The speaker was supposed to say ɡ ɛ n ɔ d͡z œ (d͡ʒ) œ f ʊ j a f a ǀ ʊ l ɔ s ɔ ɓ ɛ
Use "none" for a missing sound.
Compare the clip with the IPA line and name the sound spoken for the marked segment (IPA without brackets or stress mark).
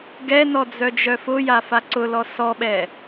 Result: d͡ʒ